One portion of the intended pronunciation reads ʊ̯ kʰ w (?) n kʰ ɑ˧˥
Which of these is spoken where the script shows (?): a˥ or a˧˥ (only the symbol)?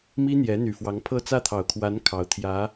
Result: a˧˥